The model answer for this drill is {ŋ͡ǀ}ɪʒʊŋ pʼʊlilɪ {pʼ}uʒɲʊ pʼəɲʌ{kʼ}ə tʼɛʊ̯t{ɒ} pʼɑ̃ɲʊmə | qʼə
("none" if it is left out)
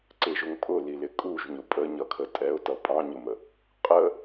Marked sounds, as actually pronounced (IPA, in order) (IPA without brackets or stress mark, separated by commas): ǀ, kʼ, kʰ, ʌ